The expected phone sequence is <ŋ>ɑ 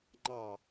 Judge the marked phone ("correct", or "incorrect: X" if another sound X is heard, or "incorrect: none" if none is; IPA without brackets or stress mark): incorrect: ŋ͡ǃ